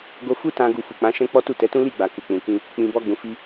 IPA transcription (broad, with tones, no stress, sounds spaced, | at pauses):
ɡ o˧ f u˦ t ã˧ ɡ u˧ f u˨ k͡p ã˨˦ ʃ ɛ̃˦ k͡p ɔ˦ t u˦˨ t ɛ˨˦ t ũ˦ l i˦˨ ɡ͡b a˨ k u˨ k͡p ũ˨ k ĩ˧ | k͡p ĩ˨ b ɔ˧ ɡ͡b ũ˨ f i˧